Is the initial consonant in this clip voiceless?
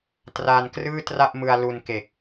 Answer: yes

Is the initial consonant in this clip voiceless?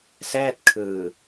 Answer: yes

